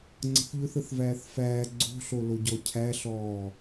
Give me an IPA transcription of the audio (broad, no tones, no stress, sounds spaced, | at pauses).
ŋ͡ǀ ə̤ θ ʎ ɵ θ ə θ v æː θ f æː ɡ͡ǀ o̤ ɬ o l o ɟ ɔ cʰ æ ɬ ɔː